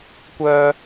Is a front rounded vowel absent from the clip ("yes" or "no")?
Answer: no